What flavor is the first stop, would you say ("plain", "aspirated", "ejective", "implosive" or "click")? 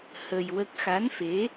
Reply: plain